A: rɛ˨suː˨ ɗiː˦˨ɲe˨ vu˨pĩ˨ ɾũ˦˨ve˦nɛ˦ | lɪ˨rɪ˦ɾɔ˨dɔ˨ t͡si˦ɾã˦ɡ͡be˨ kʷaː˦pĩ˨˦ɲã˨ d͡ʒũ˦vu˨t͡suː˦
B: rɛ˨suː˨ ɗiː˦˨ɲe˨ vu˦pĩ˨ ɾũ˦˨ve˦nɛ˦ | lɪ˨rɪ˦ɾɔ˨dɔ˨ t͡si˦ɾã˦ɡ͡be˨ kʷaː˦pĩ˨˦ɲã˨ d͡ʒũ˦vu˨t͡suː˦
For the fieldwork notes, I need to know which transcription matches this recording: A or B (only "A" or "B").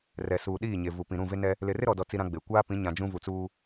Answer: A